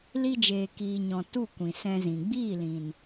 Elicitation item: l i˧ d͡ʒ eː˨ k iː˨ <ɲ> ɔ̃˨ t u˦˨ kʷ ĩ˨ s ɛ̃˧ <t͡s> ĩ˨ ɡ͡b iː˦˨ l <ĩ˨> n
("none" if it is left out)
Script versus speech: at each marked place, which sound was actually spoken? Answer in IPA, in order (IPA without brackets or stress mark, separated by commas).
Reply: ɲ, z, ĩ˨